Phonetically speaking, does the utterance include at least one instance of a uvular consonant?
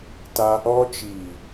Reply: no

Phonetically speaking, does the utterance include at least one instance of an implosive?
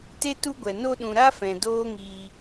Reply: yes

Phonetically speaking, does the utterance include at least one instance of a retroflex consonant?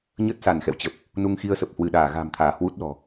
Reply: no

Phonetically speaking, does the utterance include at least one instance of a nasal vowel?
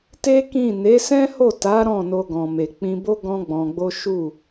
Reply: yes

